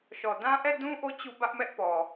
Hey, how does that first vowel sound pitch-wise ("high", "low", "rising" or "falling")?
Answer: low